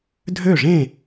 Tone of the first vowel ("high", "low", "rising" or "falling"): falling